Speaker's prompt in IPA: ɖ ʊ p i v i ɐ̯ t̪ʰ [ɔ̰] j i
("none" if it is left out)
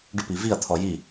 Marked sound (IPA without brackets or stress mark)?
ɔ